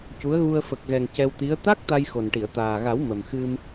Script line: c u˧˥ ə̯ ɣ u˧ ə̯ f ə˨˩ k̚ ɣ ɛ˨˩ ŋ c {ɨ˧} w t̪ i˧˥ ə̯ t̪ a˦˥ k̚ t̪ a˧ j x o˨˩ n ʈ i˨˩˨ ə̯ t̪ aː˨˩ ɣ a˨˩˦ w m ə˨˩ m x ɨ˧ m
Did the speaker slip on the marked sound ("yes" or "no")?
yes